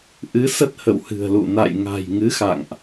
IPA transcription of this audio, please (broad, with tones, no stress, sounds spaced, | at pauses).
ʔ ɨ˨˦ s ə˦˥ t̚ h ə̰˧˨ w h ɨ̤˨˩ ə̯ l ṵ˧˨ n a̰˧˨ j ŋ a̤˨˩ j ŋ ɨ˨˦ x a̰˧˨ ŋ ʔ